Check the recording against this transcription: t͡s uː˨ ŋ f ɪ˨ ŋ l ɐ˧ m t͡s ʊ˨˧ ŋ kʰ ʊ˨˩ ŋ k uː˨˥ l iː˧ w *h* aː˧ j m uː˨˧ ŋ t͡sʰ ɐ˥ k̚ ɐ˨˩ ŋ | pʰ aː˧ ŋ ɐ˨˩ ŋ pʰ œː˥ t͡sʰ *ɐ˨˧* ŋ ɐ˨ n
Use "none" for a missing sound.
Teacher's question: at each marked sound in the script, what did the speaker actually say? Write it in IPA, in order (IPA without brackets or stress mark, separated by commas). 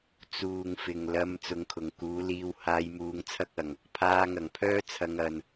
h, ɐ˨˧